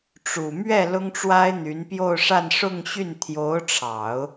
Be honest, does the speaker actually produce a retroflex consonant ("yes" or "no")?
yes